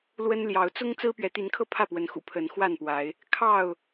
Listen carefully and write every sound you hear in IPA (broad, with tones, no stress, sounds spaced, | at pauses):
l w ə˦ n l j ɑ˨˦ ʊ̯ t͡s ʊ˦ ŋ t͡s ɹ̩˦ p ɥ ɛ˨˦ t̪ i˨˦ n kʰ ɤ˥˨ pʰ ä˥˨ p w ə˨˦ n x ṵ˨˩ pʰ ə˨˦ n x w a˥˨ n p w a˨˦ ɪ̯ | kʰ ɑ˥˨ ʊ̯